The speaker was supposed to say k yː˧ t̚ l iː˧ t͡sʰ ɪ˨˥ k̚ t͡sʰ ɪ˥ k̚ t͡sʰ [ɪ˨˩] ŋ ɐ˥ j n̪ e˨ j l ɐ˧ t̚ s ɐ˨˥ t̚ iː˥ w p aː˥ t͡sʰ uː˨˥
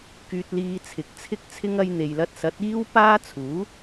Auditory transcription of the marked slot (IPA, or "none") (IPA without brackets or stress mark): ɪ˥